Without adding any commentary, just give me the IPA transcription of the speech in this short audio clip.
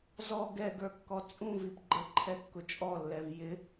zɔ ɡɛɡə˞kːɔ t͡sʼũvip ɡ͡ǃəǃʰɛkːʊ t͡ʃʼɔlːɛv jɪ

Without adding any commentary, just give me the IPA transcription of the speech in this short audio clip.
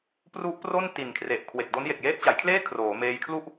pru˦˥ʔpro˥˩n ti˨˩nkʰre˨˩ʔ kʰwe˨˩k̚do˦˥n je˨˩k̚jeː˦˥t̚t͡ɕa˩˦jkʰleː˥˩ kʰroː˩˦meː˧j kʰlu˥˩ʔ

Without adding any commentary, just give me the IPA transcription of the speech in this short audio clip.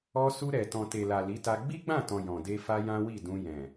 ɔ˧su˧ɾɛ˨ tɔ̃˨te˨la˨ li˨˦ta˧ ɡ͡bi˦ɡ͡bã˦˨tɔ̃˨ jɔ̃˨de˧ fa˦jã˦wi˦˨ dũ˧ jɛ̃˨

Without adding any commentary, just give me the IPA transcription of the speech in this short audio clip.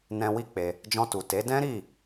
nɛ̃˧wi˦ k͡pe˧ | d͡ʒɔ̃˧tu˨ te˨˦ dɛ̃˦ɾi˦˨

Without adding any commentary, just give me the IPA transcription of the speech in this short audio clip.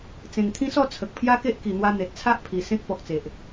t͡sẽ˨˩ŋt̪ʰĩ˦sɔ˥˧ t͡sʰə˨k̚pʰja˦ ke˦ʔ ki˨˩n̪wa˧ n̪e˨t̚t͡sʰa˦ʔpʰi˨˩ sẽ˦k̚ pɔ˨k̚t͡se˨ʔ

